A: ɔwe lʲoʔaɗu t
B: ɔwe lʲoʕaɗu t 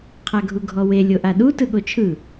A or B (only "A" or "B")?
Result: A